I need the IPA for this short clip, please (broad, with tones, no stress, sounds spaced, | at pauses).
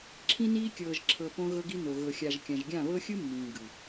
ǁʰ ĩ˦ n iː˦ kʲ ɤː˨ ʒ ǁʰ ɤ˨ p õ˦ ɣ ɤ˦ ɡ i˦ n o˨ ɣ ɤ˨ xʲ a˨ ʒ kʲ ã˨ ʒ ɡʲ ã˦˨ β ɤ˦ xʲ ɯ˦ mː ĩː˨ ɡ ɯ˨